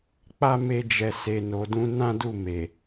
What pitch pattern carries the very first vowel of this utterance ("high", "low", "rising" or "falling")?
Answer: high